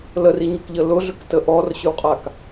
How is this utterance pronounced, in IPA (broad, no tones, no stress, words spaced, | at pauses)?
ləriɲəkʎə lʊɮʏktə ʔɔrɕʏwqʼak